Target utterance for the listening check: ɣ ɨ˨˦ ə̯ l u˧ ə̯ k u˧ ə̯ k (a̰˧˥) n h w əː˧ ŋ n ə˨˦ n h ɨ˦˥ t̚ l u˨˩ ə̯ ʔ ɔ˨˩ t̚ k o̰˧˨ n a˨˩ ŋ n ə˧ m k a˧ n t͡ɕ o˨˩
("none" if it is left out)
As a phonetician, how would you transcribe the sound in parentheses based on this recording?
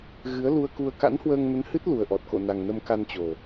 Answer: a̰˧˥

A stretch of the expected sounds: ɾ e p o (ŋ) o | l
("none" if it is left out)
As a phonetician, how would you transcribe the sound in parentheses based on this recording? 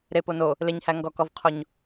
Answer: n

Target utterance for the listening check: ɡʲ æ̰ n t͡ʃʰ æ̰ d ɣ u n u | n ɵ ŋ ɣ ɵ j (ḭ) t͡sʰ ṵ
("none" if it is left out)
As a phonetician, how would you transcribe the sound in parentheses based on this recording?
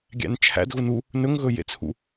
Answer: ḛ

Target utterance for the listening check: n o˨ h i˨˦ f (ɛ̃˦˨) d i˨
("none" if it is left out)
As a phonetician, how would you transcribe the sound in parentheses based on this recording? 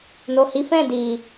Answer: ɛ̃˦˨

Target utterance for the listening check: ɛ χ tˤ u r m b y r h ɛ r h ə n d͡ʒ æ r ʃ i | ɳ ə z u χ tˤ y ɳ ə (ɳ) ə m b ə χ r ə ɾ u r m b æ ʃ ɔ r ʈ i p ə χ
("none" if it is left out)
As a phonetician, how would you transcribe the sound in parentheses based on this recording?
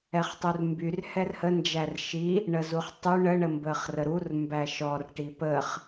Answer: ɳ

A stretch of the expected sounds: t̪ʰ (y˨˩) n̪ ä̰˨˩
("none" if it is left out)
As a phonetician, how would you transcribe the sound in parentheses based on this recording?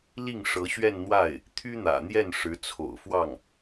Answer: y˥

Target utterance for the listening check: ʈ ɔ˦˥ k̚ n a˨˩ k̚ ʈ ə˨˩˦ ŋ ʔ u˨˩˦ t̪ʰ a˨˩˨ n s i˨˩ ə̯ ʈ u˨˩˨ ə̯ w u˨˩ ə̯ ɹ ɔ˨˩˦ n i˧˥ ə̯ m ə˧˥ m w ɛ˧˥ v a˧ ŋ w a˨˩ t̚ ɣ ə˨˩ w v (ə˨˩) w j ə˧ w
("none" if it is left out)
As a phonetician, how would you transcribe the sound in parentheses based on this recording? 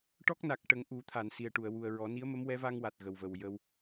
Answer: ə˨˩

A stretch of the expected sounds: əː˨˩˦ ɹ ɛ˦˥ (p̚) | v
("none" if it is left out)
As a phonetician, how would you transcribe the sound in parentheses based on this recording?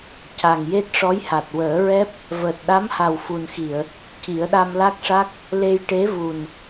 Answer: p̚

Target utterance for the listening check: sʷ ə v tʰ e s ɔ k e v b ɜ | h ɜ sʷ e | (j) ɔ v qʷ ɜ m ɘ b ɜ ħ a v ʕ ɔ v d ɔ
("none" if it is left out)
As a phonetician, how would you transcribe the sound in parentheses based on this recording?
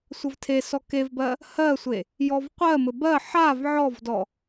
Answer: j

